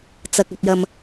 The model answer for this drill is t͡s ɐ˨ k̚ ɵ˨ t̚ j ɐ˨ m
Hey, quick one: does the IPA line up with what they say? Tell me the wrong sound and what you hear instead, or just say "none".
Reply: none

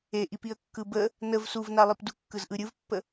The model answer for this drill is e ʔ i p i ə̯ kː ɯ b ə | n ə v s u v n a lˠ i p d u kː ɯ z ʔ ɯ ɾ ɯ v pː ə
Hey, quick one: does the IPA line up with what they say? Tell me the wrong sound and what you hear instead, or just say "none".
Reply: ɾ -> ɾʲ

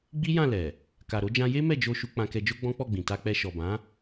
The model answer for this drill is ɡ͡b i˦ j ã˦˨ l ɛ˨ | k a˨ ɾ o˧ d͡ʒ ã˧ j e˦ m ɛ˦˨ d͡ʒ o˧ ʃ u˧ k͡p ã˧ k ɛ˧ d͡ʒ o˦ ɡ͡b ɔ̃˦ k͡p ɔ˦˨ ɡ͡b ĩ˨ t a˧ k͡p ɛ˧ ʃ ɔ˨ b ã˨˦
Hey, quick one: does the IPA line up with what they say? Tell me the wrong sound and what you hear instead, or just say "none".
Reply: none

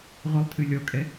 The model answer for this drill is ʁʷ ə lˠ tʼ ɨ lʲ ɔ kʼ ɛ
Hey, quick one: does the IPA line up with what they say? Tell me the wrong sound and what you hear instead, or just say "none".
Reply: none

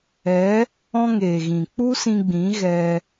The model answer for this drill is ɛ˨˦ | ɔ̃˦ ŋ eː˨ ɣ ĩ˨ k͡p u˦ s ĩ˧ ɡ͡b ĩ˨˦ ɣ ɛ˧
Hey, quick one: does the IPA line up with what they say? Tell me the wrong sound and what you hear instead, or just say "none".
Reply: none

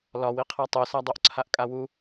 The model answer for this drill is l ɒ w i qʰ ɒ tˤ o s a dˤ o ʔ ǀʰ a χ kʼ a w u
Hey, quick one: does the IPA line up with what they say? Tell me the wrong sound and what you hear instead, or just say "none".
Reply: χ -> ʔ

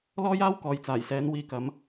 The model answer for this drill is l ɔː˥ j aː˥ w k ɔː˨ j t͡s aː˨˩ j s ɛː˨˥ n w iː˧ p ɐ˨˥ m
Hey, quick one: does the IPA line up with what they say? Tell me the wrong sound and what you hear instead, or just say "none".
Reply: p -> k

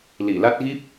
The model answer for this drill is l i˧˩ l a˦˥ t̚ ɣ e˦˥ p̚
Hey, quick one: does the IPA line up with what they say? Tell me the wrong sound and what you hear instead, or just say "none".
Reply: e˦˥ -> i˦˥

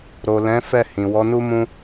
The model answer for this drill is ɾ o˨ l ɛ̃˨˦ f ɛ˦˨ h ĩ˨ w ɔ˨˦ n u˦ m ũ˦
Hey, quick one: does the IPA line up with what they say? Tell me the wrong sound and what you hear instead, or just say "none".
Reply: none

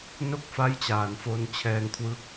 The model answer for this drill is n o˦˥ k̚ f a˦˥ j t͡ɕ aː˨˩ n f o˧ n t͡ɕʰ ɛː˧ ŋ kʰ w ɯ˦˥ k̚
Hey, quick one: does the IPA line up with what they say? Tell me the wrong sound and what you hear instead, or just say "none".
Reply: none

